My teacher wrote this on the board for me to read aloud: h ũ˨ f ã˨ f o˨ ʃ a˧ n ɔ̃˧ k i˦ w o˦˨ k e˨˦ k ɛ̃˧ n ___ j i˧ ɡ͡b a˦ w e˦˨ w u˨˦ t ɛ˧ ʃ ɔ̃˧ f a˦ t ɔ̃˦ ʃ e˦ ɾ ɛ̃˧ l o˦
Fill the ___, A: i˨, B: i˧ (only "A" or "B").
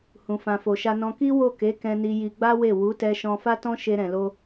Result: B